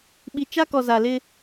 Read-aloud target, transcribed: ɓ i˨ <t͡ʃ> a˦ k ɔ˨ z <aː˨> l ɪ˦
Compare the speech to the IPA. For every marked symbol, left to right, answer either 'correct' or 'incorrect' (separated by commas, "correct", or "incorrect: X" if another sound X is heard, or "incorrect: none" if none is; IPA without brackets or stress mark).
correct, incorrect: a˨